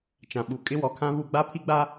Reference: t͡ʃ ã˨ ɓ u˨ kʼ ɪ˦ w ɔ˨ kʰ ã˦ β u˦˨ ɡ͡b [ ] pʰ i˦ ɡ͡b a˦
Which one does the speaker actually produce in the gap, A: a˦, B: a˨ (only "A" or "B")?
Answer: A